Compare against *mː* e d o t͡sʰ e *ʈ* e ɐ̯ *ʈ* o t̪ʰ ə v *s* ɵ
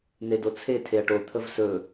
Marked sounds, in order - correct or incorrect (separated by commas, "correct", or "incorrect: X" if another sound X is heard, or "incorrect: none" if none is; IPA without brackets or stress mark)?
incorrect: n̪, incorrect: tʰ, correct, correct